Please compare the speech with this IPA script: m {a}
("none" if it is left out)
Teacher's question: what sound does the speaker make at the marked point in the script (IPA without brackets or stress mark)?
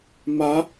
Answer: a